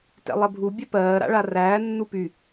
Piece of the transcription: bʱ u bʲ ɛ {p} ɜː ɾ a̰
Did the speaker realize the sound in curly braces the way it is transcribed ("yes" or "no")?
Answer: yes